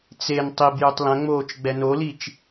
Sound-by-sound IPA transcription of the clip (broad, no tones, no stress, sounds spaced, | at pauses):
t͡s e n tˤ i b j u tˤ l ɐ̃ ŋ͡m oː t͡ʃ ɡ͡b ɛ n o l i t͡ʃ